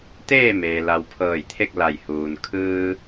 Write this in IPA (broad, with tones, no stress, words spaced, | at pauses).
t̪eː˥˨meː˩ la˩w pʰɤː˧˩jt̪ʰe˥˨k̚la˧˩jhuː˩n kʰɯː˧